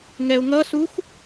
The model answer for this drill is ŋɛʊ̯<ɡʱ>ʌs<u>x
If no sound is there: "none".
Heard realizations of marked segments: ŋ, u

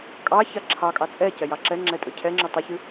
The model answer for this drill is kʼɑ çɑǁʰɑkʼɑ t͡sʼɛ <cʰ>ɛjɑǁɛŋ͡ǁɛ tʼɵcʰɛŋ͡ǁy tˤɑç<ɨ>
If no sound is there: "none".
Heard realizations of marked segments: c, ɨ

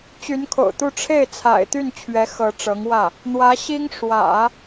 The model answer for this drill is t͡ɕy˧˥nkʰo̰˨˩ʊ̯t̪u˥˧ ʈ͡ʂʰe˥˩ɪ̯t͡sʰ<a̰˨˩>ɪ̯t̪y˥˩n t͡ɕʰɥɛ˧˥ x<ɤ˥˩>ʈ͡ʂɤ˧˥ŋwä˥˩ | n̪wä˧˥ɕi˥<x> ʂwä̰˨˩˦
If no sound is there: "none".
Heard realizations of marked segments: a̰˨˩, ɤ˧˥, ŋ

